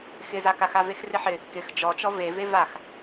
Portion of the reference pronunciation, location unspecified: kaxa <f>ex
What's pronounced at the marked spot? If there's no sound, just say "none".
v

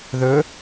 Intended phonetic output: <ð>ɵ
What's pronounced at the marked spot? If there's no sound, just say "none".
ð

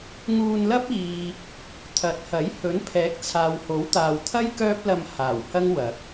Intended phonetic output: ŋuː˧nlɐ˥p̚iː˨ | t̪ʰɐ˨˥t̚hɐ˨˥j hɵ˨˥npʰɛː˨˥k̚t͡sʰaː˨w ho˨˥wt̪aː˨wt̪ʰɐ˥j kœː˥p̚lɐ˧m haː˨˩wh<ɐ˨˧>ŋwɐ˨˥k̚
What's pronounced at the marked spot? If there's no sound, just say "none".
ɐ˥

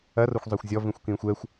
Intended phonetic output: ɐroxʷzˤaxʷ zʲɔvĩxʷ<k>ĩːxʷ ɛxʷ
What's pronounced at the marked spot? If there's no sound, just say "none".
k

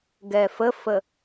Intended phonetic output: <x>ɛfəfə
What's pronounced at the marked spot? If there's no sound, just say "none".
ɡ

